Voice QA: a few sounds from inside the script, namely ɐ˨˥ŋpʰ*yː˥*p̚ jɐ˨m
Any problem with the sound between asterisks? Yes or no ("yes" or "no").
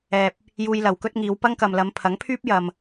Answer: no